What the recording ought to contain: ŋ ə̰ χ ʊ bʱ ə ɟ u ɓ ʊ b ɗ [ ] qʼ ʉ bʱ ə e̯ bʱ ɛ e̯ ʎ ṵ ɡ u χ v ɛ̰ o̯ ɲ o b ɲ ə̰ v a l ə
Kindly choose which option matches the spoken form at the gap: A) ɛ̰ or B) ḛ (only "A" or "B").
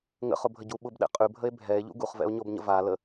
A